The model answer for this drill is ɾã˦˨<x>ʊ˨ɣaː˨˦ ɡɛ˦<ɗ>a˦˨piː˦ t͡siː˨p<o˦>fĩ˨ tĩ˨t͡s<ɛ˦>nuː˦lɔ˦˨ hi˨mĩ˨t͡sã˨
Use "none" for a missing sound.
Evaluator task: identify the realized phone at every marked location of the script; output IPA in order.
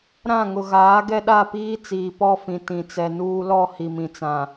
ŋ, ɗ, ɔ˦, ɛ˨

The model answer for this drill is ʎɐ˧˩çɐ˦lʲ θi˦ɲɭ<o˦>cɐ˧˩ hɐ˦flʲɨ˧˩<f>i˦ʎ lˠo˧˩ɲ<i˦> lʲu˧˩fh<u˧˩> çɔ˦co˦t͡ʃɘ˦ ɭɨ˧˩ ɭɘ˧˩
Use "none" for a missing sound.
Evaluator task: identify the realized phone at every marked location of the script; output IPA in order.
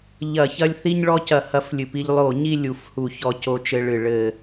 ɔ˦, p, i˦, u˧˩

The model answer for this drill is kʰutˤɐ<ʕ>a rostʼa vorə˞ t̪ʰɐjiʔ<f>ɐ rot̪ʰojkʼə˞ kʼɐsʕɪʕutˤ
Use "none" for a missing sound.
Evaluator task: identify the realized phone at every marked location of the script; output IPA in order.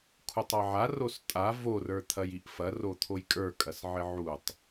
ʕ, f

